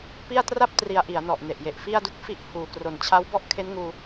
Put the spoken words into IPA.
p i˥˩ a̯ t r a˥˩ p̚ t r i˩˦ a̯ ʔ i˩˦ a̯ n ɔ˨˩ ʔ n e˨˩ ʔ j e˨˩ ʔ f i˥˩ a̯ d u˦˥ k̚ f i˥˩ ʔ h uː˨˩ k r o˨˩ n t͡ɕʰ a˦˥ w b ɔ˥˩ ʔ kʰ e˦˥ n ŋ uː˧

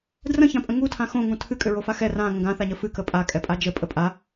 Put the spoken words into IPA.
d r ə̃ ç ã pʼ ə̃ ŋ u tʰ ã x õ ŋ ũ tʰ ɨ kʼ ʏ ɹ o f a x ɛ r ã ŋ ə̃ ɡ ã θ a ɲ ə f ɨ k ə pʼ a kʼ ɛ pʼ a d͡ʒ ə pʼ ə pʼ a

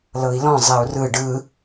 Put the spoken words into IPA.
l ɤ i̯ l ɔ̃ zˤ ɛ u̯ r ɯ ɖ ɯ

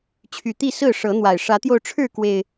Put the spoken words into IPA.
t͡ɕʰ y˨˩ t̪ i˥˨ s ɹ̩˥˨ ʂ ɤ˨˦ n̪ w a˨˩ ɪ̯ ʂ ä˨˦ t̪ j o˧ ʊ̯ ʈ͡ʂʰ ɻ̩˥˨ k w e˨˩ ɪ̯

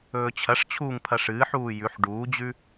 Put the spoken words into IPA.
ɵː t͡ɕʰ ɐ ʂ t͡ɕʰ uː ŋ pʰ ɐ ʂ ɨː ħ uː j ʉ ħ ɖ uː d͡ʑ ʉ

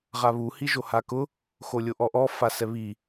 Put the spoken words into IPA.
ʁ a β u h i ʒ o h a k ʊ | x o lʲ o ʔ ɔ ʔ ɔ f a s ɛ β i

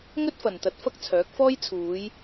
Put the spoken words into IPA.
ŋ ɵ˥ t̚ f ɐ˨ n t̪ ɐ˧ t̚ f ɐ˥ k̚ t͡sʰ œː˨˥ k̚ f ɔː˥ j t͡sʰ uː˨˧ j

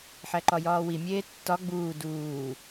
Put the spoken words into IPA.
ħ æ ǃ ɒ j ɒː w i mʲ eː tː ɒ ɡ͡b uː d uː

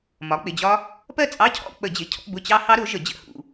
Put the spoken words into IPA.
m ɒ˩˥ k͡p ɪ˩˧˩ d͡ʑ ɒ˦˥ | p ɜ˥˧ t͡sʼ ɑ˧˥˧ cʰ ɔ̰˥˧ k͡p ə˧˩˧ d͡ʑ ɪ˩˧˩ cʰ ɔ̰˧˥˧ b ʊ˧˥˧ t͡ɕ ɑ˦˥ h ɑ˦˥ ɾ ʊ˩˥ ʒ ə˧˩˧ d͡ʑ ə̰˧˩˧ h ṵ˩˧˩

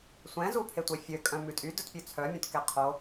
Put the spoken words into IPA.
sʷ ɛ̃ z u pʰ e tʷ e fʲ ø kʼ œ̃ m ʉ tʼ y d ɵ t pʲ ʉ t͡sʰ œ mʲ õ t k ɛ qʰ o

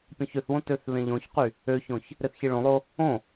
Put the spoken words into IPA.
pʲ õ ç ø θ w õ t ø θ β ẽ ʎ õ ç q y | ø ç õ ç | ɾ e θ ç i ɭ õ lˠ o | õ

